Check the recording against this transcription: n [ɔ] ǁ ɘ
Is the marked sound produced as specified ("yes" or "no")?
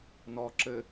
yes